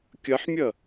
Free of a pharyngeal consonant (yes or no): no